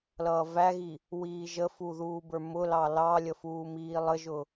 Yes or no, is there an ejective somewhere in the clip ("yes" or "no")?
no